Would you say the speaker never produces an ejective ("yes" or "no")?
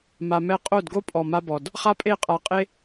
no